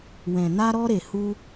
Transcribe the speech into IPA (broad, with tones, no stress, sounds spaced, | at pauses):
w ɛ̃˨ n a˧ ɾ ɔ˧ ɾ e˨ h u˧